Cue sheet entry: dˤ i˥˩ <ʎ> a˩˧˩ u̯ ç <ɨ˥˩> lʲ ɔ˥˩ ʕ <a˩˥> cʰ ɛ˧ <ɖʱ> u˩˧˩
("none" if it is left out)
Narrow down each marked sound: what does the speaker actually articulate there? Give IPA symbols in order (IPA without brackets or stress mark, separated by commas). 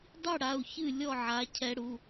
ɽ, ɨ˥˩, a˩˥, ɽ